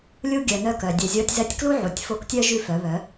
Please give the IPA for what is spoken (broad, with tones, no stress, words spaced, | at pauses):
lʲu˧ɡʲɜ˨ nœ˦kœ˨ dʲɛ˨zʲɔ˧tʲzɜ˧tʲklu˦ ʕu˨tʲfo˧ktʲœ˦ ʒʉ˦fœ˨˦βœ˨˦